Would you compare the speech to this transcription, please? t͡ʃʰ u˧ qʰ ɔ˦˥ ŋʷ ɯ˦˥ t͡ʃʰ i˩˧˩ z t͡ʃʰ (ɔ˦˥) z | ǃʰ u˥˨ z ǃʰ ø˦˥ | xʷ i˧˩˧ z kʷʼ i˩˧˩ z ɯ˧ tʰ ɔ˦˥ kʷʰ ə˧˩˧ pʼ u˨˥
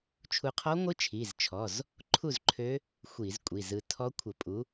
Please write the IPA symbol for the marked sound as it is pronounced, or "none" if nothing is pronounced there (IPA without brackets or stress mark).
ɔ˩˧˩